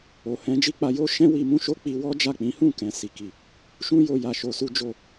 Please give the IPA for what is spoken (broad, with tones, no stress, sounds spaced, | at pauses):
o˨ h ɛ̃˨˦ d͡ʒ i˦ k͡p a˧ j o˦ ʃ ɛ̃˦ w i˧ m ũ˦ ʃ o˦ k͡p i˧ w ɔ˦ d͡ʒ a˦˨ k͡p ĩ˨˦ h ũ˦˨ k ɛ̃˨ s i˨ k i˨ | ʃ ũ˦ j o˧ j a˧ ʃ o˧ s u˦ d͡ʒ o˦˨